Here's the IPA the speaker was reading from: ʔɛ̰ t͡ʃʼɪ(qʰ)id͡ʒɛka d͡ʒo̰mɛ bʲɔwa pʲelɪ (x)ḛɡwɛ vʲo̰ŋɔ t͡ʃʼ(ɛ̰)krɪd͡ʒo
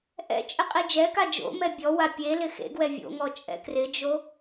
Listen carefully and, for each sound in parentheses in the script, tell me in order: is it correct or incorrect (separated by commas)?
incorrect, correct, correct